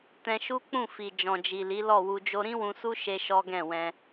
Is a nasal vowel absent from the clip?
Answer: no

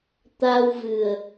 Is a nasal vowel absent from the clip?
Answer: yes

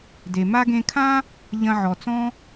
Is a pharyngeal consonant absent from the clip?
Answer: no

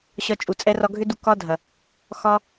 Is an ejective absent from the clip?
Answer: no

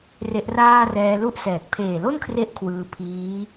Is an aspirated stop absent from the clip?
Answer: no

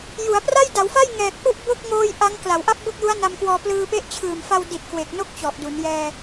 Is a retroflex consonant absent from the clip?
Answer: yes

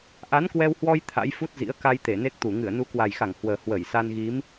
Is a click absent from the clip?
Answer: yes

